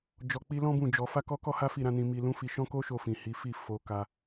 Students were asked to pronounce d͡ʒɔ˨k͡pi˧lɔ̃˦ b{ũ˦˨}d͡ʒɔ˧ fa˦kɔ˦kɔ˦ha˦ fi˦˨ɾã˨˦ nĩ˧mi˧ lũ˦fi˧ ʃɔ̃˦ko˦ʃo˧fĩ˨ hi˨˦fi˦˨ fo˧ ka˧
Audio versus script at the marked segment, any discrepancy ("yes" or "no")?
no